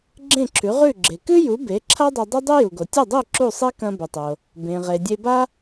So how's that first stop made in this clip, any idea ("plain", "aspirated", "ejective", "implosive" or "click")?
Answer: click